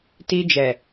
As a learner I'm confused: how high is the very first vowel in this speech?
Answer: high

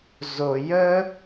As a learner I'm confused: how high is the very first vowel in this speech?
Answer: mid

